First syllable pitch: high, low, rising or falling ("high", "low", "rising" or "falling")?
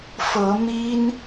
rising